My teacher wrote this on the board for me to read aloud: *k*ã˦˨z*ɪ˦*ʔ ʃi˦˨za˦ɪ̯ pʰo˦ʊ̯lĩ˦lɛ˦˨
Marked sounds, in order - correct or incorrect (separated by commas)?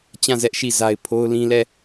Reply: incorrect, incorrect